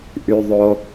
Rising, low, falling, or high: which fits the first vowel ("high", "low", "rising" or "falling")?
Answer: high